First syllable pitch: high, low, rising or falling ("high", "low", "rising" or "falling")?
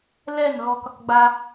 falling